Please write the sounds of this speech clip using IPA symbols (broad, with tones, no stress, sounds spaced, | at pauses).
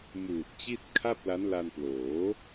m uː˨˩ t̚ t͡ɕ i˥˩ t̚ kʰ a˥˩ p̚ l a˦˥ n l a˧ n p l oː˩˦